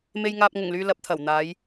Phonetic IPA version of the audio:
me˨jŋaː˨p̚ŋʊ˨˩ŋlyː˨ lɐ˨˥p̚t̪ʰɐ˨˩w n̪aː˨˧j

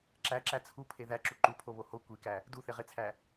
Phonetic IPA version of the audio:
ǁæǁæ t͡sʰupʰe ðæǁu ǃupʰoβo ho kʷikæ | duθeʁet͡sʰæ

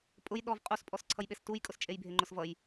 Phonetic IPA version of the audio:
pʼʊj ɗɔv qʼuspʼɔsǀʰʌjɓes tujkʼʊst͡ʃʼejbʱe ŋ͡ǃʊsvʌj

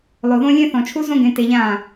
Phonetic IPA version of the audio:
lˠo˨ðõ˦lʲẽ˦ θɔ̃˨t͡ʃʰu˦zõ˦ ɡẽ˧te˧ʎãː˦˨

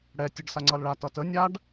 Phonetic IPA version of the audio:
ɽɛ tʲəɖsaŋ͡ǀʌl ɭatʌ tə nʲaɖ

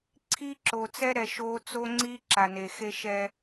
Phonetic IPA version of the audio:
ǀʰi˦ǁo˨t͡sɛ˦ɾɛ˨ʃ o˦ t͡so˦ŋ͡ǀi˦ ǁa˨ne˨xe˦ ʃɛ˦

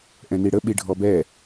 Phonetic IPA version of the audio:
ʔɛ̃niɽə ɓiɖʱɔbɛ

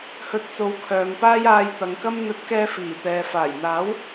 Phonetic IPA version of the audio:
hɵ˧t̚t͡so˨˥wkʰœː˨ŋpaː˥j aː˨j t̪ɐ˨˧ŋkɐ˥m n̪ɵ˨˥t̚kɛː˧ fiː˨˩t̪ɛː˨ faː˨˩jn̪aː˨˥w

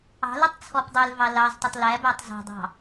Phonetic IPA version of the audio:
ɑ̤lɛtˤ t͡sʰɔpdˤølvɑ lɑztˤɵtˤ læbætˤ zɑ̤dˤɑ̤

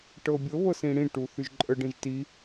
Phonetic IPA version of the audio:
ʈɤbʲɤ βɤsĩɽĩ ʈuθyʒǃʼə ɖĩʒti

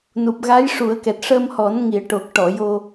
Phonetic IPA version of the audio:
nu˨˩p̚ɣa˧˥jʂu˨˩˦ə̯kɛ˨˩t̚ ʂə˧mhɔ˨˩˦n ŋi˨˩˦ə̯ʈo˨˩k̚ʈɔ˨˩˨ jo˧

